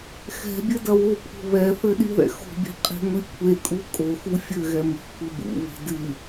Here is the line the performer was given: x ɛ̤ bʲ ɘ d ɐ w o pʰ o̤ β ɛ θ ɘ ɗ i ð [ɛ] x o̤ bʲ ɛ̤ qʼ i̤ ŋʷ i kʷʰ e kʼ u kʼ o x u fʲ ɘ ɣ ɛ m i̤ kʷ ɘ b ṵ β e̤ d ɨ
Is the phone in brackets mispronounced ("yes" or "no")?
yes